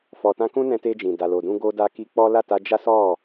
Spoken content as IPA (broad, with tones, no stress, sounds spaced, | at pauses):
f ɔ˨ t ã˧ k ũ˦ n ɛ̃˧ t e˧ d͡ʒ ĩ˨ d a˨ l o˨ d ũ˧ ɡ o˧ d a˧ k i˧ k͡p ɔ˦ l a˦˨ t a˧ d͡ʒ a˦ s ɔ˦˨